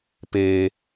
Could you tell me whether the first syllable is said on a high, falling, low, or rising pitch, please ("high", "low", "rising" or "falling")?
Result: high